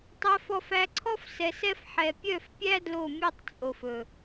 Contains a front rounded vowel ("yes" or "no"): yes